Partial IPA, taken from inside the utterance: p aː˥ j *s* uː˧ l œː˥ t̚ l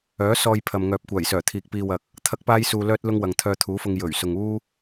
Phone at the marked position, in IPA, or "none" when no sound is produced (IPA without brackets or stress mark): s